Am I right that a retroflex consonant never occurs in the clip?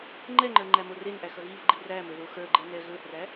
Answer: yes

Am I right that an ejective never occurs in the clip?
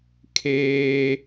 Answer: yes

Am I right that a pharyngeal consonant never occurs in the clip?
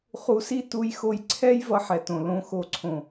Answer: no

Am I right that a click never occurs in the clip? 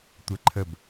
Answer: no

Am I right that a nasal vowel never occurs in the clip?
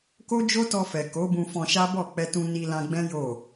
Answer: no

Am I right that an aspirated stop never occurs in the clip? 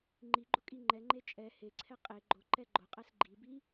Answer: no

